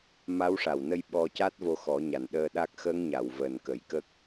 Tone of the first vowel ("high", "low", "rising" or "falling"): rising